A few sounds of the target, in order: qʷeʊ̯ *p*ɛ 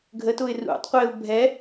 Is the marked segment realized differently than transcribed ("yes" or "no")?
yes